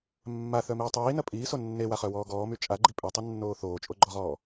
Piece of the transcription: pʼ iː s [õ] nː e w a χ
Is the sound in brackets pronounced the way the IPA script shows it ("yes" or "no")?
no